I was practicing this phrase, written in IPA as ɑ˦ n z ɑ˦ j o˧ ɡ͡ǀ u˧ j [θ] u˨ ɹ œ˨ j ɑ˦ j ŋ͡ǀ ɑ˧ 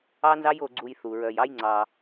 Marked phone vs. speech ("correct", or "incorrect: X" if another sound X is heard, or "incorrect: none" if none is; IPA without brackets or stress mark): correct